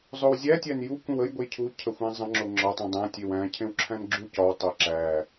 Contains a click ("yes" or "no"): yes